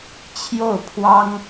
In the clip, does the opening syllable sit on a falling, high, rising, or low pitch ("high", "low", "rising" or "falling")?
falling